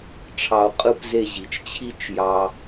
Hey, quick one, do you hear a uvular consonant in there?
yes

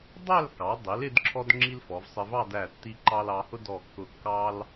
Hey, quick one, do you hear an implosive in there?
no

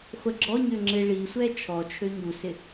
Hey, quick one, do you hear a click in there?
yes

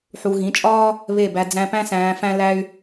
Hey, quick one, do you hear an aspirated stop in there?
no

